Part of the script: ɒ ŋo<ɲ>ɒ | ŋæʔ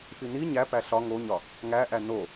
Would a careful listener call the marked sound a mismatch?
no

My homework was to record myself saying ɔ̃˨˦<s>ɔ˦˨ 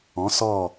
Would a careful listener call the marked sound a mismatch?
no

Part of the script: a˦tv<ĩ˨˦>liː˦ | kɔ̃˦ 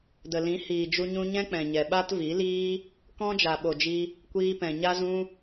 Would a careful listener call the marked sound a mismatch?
yes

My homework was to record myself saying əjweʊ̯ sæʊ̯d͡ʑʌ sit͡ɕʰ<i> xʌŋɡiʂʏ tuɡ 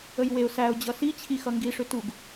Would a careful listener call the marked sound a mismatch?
no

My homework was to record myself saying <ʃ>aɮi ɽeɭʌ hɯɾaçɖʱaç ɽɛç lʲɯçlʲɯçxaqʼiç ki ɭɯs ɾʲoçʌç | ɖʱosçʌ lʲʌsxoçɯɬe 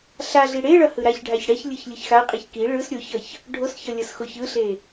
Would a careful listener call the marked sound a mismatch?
yes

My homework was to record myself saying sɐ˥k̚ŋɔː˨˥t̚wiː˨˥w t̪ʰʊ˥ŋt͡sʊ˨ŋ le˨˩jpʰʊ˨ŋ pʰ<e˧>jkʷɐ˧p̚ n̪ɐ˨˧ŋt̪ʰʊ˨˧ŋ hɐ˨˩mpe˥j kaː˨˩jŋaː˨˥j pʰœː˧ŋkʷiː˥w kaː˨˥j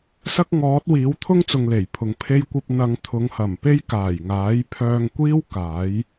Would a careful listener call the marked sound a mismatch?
no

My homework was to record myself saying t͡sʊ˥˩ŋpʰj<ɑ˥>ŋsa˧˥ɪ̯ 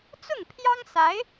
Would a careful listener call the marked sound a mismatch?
no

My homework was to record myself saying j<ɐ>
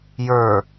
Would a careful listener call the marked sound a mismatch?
yes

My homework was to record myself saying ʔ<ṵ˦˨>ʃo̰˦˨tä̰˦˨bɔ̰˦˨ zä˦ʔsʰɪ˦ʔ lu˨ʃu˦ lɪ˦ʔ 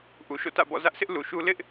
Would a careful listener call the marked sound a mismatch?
yes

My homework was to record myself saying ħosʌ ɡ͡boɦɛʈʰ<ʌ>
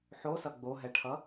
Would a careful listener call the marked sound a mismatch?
no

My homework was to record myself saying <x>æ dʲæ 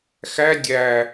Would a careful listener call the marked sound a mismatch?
no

